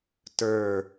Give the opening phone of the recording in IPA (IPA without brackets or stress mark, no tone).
t